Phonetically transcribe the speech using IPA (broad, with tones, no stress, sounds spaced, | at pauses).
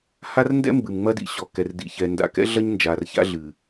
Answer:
h a˦ r n d ɛ̰˦ m b ɨ˨ m ŋ͡m ɐ˦ d ḭ˨ ɕ ɔ˨ k ɛ˨ r d ḭ˨ ç ɛ˨ n d a̰˨ k ɛ̰˦ ɮ ɐ˦ ɲ n d͡ʒ a˨ r ç a̰˦ ɮ ɨ˨